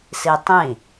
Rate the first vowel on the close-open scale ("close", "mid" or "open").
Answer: close